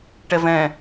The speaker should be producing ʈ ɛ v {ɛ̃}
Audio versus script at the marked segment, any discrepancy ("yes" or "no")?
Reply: no